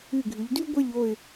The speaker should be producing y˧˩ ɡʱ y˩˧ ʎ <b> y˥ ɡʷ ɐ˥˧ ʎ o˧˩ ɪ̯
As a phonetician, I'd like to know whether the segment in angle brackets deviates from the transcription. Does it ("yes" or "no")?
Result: yes